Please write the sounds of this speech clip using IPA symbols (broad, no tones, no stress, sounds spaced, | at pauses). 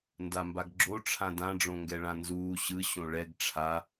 n d a m b a ɡ ɡ͡ǁ o ʈ͡ʂʰ ã d ã ɖ͡ʐ õ ŋ ɡ ɛ ɭ ã n z uː ɕ ɯ ɕ õ ɭ ɛ ɡ ʈ͡ʂʰ a